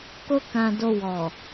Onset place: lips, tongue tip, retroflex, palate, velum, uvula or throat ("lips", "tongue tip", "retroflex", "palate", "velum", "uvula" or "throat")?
velum